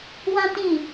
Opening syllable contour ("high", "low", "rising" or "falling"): high